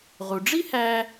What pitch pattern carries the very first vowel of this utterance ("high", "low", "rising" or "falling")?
low